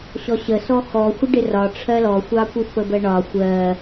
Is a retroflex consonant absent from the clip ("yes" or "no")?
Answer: no